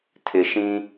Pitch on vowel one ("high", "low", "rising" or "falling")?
low